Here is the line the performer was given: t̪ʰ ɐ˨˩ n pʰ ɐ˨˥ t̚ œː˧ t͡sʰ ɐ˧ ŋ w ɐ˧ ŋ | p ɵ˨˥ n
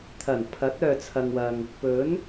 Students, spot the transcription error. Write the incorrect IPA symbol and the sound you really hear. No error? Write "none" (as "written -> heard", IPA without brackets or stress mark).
none